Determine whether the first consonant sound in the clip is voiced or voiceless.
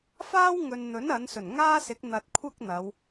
voiceless